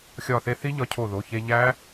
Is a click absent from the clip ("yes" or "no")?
yes